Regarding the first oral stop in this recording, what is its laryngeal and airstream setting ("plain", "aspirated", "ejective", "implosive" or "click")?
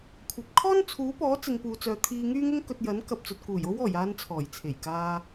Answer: aspirated